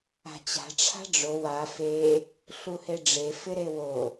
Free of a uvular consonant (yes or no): yes